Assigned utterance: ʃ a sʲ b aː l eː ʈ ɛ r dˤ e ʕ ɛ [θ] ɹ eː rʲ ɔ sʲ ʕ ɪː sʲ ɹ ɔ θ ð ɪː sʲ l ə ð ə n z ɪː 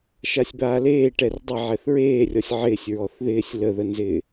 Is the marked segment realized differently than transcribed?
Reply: no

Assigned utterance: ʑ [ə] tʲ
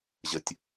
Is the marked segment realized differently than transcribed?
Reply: no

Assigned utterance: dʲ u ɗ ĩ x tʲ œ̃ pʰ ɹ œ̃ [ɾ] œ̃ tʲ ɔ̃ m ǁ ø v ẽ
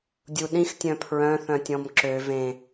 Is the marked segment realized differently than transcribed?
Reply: yes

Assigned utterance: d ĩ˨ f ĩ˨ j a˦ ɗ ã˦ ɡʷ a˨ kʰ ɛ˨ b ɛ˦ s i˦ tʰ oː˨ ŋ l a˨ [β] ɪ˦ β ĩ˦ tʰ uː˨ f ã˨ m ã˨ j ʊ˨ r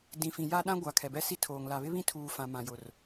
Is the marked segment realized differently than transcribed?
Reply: no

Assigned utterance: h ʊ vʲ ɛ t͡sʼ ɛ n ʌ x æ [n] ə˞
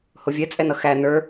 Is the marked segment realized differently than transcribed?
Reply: no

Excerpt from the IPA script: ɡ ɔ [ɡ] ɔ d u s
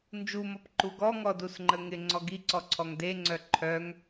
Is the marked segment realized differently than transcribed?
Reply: yes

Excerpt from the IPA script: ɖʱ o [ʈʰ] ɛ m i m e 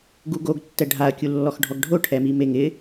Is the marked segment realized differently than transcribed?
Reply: no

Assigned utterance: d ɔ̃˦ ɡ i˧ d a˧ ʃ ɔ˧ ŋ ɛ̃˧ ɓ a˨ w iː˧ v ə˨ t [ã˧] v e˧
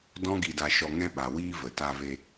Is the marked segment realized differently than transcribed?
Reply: yes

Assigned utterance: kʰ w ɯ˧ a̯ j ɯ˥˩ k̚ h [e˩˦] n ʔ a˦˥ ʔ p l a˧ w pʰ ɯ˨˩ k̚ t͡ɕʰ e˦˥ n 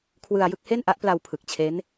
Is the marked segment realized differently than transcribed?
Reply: yes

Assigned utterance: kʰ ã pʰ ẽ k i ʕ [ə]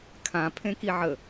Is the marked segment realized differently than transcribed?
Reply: no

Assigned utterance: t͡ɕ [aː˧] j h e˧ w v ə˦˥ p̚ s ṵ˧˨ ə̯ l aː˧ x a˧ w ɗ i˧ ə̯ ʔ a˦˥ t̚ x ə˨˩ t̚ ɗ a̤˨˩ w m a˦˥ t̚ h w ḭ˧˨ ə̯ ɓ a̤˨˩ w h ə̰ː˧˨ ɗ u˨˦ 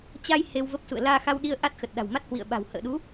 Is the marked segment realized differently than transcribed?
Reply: yes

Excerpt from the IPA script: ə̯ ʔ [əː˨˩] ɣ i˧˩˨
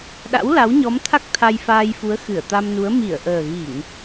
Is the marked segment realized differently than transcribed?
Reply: no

